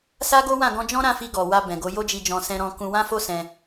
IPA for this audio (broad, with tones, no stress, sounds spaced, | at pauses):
s a˦ ɡ o˦ w ã˦˨ ɡ ɔ̃˧ d͡ʒ ɔ̃˦ ɾ ã˦˨ f i˧ ɡ ɔ˨ w a˧ b ɛ̃˨ ɡ o˨˦ j o˦ d͡ʒ i˧ d͡ʒ ɔ̃˧ s ɛ̃˧ ɾ ɔ̃˧ k ũ˧ w ã˦ f o˦ s ɛ̃˧